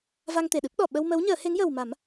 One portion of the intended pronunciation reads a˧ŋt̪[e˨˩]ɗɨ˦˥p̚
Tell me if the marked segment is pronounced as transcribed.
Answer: yes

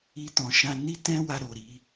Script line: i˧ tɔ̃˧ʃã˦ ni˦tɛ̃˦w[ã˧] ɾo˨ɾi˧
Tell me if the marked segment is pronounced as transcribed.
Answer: no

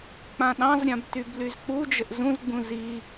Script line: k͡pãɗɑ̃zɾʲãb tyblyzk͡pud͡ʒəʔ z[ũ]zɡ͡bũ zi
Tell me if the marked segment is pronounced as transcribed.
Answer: yes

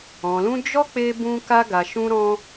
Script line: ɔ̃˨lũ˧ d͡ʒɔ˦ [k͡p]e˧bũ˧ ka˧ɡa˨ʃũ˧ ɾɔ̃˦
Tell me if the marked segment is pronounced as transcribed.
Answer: yes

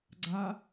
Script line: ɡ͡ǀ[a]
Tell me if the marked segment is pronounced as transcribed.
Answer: yes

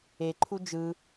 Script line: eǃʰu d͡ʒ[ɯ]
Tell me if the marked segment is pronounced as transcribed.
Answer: yes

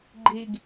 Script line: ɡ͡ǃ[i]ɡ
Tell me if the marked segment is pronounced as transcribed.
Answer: yes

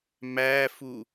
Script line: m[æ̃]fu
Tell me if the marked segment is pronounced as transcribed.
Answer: no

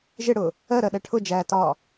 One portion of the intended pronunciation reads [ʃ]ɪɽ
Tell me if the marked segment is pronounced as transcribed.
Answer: no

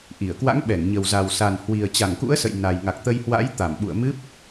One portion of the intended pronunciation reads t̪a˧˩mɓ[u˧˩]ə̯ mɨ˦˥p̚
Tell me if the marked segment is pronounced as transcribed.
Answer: no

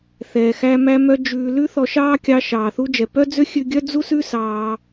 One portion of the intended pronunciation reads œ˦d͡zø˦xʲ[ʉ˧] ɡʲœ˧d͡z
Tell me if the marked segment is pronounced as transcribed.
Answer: yes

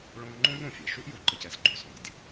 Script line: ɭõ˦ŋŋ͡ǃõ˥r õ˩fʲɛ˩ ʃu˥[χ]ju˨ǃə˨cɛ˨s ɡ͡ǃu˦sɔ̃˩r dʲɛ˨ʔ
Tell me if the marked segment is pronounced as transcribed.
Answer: no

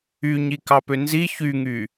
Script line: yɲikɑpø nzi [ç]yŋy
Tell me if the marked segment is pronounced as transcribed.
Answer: yes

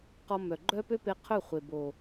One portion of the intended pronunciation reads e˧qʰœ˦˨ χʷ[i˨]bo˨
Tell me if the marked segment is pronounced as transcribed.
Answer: no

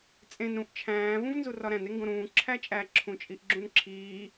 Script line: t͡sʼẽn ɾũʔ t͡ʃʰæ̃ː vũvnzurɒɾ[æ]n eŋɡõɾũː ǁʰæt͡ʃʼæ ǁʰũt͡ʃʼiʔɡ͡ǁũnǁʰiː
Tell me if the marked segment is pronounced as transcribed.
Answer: no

